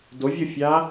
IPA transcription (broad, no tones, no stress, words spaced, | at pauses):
dovʲofʲa